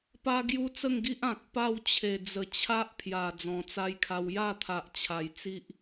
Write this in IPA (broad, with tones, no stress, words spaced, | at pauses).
pa˦ɡju˦t͡sə˥˧ŋɡi˦ʔ ã˨k̚ pa˥˧w t͡ɕʰe˨˩d͡zə˨˩ t͡ɕʰa˦ʔpʰja˨˩ d͡zɔ̃˨˩t͡sa˦jkʰa˧w ja˥˧t̪ʰa˨ʔ t͡ɕʰa˨˩j t͡si˦ʔ